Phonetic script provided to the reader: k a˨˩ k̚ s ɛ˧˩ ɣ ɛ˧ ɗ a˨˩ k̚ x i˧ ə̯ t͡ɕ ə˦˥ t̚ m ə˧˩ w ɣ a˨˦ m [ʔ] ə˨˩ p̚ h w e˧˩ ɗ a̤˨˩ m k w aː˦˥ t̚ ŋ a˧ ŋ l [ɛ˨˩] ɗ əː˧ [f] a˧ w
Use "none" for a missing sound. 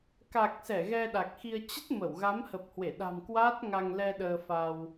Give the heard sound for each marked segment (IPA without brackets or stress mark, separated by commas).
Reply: h, ɛ˧, f